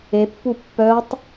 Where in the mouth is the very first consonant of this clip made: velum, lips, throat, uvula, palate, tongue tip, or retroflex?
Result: lips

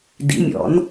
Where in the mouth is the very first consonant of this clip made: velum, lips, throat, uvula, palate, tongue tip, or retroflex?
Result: tongue tip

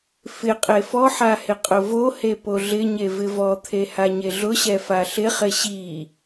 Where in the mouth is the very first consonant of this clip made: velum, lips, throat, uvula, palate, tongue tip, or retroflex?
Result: lips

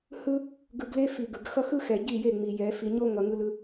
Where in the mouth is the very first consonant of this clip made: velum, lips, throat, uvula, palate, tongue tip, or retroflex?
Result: throat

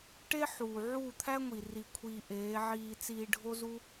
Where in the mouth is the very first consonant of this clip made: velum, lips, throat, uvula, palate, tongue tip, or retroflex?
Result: retroflex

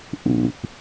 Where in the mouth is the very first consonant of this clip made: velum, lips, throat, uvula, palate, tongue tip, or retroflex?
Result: throat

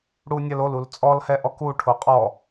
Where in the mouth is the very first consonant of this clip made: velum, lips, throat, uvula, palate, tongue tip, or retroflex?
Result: retroflex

